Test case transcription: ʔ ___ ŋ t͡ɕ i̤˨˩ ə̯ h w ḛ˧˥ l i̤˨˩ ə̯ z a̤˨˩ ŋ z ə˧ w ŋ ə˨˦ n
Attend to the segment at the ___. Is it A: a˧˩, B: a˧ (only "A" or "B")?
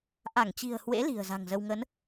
A